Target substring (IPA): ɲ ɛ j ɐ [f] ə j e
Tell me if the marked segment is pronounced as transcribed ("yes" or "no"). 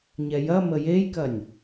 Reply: no